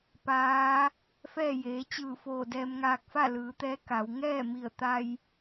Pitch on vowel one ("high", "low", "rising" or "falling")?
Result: rising